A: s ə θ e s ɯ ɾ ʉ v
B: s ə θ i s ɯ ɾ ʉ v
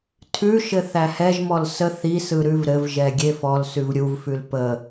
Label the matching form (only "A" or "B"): B